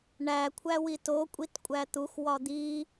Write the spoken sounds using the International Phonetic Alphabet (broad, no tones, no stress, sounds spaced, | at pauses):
ɳ æ kʷʰ æ w i t o kʷʼ i t kʷʼ æ t̪ u x w ɒ d̪ i